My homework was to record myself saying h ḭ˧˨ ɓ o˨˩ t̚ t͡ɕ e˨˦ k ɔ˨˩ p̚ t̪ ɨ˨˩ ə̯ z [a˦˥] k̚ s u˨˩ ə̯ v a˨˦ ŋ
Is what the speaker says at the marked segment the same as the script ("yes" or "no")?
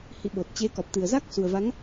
yes